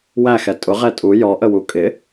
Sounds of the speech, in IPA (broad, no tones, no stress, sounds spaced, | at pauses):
w æ x ɛ tʼ ʊ ʁ ɛ tʼ u j ɔ ʔ ə w u kʼ ɪ